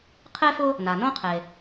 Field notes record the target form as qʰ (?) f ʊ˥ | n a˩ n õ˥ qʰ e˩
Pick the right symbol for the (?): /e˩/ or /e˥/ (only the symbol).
e˥